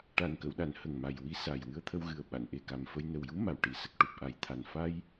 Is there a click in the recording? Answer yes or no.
no